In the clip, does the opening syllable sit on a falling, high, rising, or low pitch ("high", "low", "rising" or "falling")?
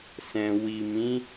low